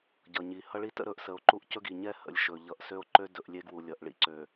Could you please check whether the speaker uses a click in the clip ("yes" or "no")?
yes